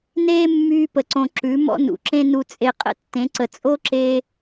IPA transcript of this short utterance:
n eː˦ mː yː˧ p ə˨ ǀ õ˨ ǁ ʉ˨˦ m ɔ̰˦ n ṵ˨ ǁ ẽ˧ n u˧ t͡sʼ e˧ qʼ ə̰˦ tː ẽ˨˦ ǀ ə˨ t͡sʼ o˦ ǁ eː˧

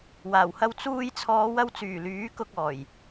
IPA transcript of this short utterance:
w aː˨˩ w h ɐ˧ w t͡s uː˧ j t͡sʰ ɔː˨˧ w ɐ˧ w t͡s yː˨˩ l yː˨˥ k ʊ˧ k̚ ɔː˨˩ j

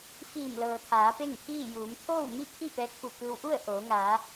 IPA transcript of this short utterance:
f iː˧˩ m l ɤː˩ t̪ʰ aː˩˧ p e˥˨ ŋ pʰ iː˥˨ j uː˩˧ m t̪ʰ oː˥˨ w m i˥˨ kʰ i˥˨ p ɛː˧˥ k̚ f u˧˩ k ɯː˧ w ʔ u˥˨ ə̯ ʔ oː˩˧ ŋ aː˩˧

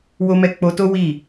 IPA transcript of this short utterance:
w o˧ m ɛ˧ k͡p o˧ t o˦ w i˦˨

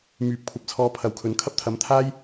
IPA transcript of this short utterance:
m yː˨˥ p̚ kʷʰ ɐ˧ p̚ t͡sʰ ɔː˧ pʰ ɐ˨˥ w kʰ ɵ˨˧ n kʰ ɐ˥ p̚ t̪ʰ ɐ˨˥ m t̪ʰ aː˥ j

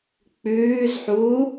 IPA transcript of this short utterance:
k͡p ʉː z ħ uː

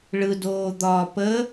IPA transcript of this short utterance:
ɭ ɯ d oː d̪ ɒː p ə

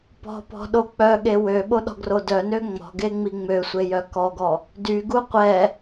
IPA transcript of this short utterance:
p ɔ̤ p ɔ̤ ɗ o k͡p œ ɠ e w ø ɓ o ɗ ɔ̤ ɡ r o d œ n ø ŋ͡m ɔ̤ ɡ e ŋ͡m i ŋ͡m ø sʷ e j œ k ɔ ɡ ɔ | d y ɡ u qʷ ɛ

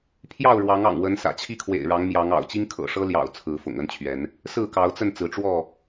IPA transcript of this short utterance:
pʰ j ɑ˥˨ ʊ̯ ɻ w ɑ˨˦ ŋ ɑ̰˨˩ ŋ w ə˨˦ n s ä̰˨˩ t͡ɕʰ i˥˨ kʰ w ḛ˨˩ ɪ̯ ɻ ɑ˨˦ ŋ m j ɑ˨˦ ŋ ɑ̰˨˩ ʊ̯ t͡ɕ i˦ ŋ kʰ ɤ̰˨˩ ʂ ɤ˦ l j ɑ̰˨˩ ʊ̯ t͡sʰ ɹ̩˨˦ f ʊ̰˨˩ ŋ ə˦ n t͡ɕʰ ɥ ɛ˨˦ n | s ɹ̩˥˨ k ɑ˨˦ ʊ̯ t͡s ə˥˨ n t͡s ɹ̩˨˦ ʈ͡ʂ w ɔ˥˨

